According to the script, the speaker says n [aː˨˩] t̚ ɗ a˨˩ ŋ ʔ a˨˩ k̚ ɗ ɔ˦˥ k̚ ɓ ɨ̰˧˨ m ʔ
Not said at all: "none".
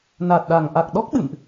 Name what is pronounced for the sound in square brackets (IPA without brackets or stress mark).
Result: aː˨˩